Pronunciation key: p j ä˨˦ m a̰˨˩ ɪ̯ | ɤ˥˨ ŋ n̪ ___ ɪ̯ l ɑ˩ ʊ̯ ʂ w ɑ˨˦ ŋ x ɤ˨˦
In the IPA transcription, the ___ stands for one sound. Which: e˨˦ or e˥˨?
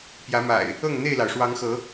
e˥˨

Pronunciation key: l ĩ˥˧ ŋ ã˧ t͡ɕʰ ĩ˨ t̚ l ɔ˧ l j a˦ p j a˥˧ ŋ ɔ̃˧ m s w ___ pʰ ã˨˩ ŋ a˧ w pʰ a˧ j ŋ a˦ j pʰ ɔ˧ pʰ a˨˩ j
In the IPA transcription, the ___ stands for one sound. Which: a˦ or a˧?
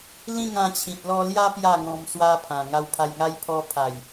a˦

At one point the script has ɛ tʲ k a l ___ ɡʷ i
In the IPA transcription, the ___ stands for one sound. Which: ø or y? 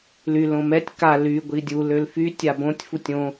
y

